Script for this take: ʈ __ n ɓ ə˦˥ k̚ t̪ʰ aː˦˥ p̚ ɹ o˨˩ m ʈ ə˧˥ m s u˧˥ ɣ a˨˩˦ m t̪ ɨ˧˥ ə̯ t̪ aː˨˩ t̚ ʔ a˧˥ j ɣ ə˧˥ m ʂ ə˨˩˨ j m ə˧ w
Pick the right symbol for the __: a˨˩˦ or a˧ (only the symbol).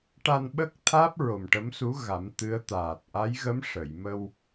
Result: a˧